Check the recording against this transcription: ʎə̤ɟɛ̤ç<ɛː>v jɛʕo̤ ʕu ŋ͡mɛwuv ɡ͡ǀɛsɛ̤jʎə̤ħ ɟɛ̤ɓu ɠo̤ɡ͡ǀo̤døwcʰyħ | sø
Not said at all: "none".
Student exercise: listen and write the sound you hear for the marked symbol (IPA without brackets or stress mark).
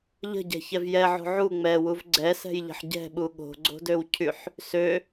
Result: ɛ